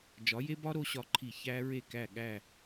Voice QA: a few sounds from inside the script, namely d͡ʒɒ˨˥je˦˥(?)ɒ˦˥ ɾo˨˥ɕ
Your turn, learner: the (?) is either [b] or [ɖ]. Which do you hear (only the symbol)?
b